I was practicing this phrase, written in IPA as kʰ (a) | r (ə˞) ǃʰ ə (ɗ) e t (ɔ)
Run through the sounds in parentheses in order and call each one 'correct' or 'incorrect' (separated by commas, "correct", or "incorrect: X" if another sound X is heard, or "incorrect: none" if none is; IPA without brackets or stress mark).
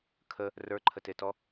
incorrect: ə, correct, incorrect: t, correct